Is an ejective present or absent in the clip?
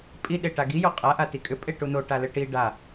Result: present